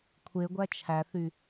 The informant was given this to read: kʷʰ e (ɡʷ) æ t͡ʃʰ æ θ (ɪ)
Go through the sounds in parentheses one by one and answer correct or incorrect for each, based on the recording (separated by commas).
correct, incorrect